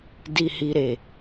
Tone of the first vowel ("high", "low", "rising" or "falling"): low